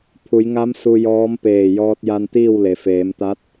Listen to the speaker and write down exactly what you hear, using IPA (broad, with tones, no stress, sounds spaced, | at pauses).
pʰ u˩˧ j ŋ a˧˥ m s u˧ j ɔː˧˥ m p eː˧˩ j ɔː˧ t̚ j a˧ n t̪ iː˥˨ w l e˩ f eː˩˧ m t̪ a˧˥ t̚